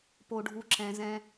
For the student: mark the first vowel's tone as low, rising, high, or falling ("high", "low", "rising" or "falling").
low